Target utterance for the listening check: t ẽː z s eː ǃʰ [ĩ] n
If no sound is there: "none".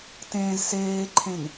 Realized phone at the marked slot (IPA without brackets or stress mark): ẽ